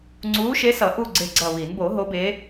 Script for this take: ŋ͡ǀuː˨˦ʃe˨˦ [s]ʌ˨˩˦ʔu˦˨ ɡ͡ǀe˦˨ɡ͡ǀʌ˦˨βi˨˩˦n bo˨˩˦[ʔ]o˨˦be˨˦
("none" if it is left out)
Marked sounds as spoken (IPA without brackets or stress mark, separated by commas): s, ɦ